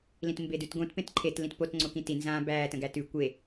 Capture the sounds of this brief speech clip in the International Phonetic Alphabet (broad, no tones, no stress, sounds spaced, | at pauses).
l ĩ t m b e d ʉ t ɡ õ t p ẽ t ǃʰ e t l ĩ t p o t ŋ͡ǀ o k ĩ t i n z ã b æ t ə̃ ɡ æ t ʉ kʷ e